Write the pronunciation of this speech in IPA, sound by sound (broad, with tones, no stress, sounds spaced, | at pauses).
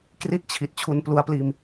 k r i˥˩ t̚ t͡ɕʰ i˨˩ t̚ t͡ɕʰ u˧ n p l u˧ a̯ p l iː˧ m